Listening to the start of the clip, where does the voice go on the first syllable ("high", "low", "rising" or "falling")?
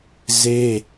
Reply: high